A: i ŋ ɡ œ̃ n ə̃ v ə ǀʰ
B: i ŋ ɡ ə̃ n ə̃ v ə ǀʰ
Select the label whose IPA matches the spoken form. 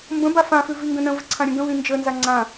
B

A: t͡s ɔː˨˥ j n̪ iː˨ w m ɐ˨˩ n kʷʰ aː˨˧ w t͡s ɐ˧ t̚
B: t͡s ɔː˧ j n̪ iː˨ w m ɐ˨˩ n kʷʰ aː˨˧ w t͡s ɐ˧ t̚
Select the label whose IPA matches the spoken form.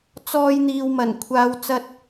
B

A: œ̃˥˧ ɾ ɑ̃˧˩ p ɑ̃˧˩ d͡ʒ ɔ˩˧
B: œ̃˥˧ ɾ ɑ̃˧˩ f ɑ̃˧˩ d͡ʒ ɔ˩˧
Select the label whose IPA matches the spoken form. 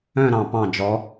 A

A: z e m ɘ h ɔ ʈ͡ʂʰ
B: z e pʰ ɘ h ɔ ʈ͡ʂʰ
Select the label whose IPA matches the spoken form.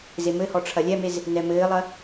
A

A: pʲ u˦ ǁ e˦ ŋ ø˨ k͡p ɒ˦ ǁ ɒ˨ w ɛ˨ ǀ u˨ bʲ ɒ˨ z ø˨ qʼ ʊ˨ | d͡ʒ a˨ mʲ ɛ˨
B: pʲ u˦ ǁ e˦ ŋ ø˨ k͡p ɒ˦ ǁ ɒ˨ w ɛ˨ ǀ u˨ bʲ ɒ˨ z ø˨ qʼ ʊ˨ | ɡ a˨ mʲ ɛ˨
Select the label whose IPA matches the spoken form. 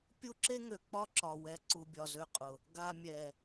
B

